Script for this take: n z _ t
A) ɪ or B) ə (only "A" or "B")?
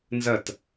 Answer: B